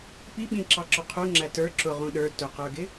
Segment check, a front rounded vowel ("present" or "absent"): absent